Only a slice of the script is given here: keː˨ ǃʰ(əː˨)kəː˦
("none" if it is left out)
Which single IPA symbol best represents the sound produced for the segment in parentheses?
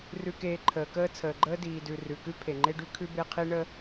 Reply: əː˨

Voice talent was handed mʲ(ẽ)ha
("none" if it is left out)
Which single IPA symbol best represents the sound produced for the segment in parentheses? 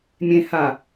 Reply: ẽ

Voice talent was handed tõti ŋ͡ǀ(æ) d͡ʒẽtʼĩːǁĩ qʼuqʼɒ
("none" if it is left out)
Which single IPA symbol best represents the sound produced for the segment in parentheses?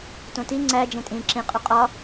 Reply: æ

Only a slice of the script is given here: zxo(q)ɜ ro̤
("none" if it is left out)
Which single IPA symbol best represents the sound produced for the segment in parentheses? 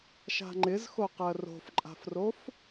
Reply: q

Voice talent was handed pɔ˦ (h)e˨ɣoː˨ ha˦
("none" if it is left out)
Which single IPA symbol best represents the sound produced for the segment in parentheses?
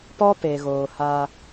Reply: p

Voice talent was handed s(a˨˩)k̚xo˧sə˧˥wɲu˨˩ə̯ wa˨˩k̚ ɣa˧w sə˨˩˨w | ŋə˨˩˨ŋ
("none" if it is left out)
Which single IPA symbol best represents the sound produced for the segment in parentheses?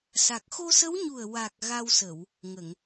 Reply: a˨˩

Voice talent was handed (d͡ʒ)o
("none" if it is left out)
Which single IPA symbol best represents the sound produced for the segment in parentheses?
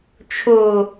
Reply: t͡ʃʰ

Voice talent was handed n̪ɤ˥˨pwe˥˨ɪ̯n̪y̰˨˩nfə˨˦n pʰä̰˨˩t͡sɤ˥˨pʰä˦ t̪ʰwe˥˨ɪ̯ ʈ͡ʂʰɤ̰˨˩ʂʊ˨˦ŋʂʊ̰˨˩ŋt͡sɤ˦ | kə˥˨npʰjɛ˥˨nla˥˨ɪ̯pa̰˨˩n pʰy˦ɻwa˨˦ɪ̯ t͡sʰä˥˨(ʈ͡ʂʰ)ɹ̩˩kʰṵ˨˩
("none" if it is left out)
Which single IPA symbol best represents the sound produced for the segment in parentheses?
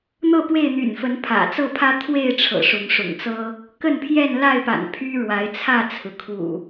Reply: t͡sʰ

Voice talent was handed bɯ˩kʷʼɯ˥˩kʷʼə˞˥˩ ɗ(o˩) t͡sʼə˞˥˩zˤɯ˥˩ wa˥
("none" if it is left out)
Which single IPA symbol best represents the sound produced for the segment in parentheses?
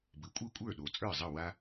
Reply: o˩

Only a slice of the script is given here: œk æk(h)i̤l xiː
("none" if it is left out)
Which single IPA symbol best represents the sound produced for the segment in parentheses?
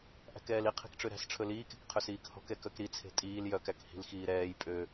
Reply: h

